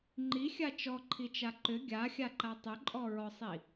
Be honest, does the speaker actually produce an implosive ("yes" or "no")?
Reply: no